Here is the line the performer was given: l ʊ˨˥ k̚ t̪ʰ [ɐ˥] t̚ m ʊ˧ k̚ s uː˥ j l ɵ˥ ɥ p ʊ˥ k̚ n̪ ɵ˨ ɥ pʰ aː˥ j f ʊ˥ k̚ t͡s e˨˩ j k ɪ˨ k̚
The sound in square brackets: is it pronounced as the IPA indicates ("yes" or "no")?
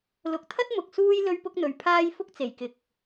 yes